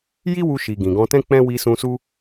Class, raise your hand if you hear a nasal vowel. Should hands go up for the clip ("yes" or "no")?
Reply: yes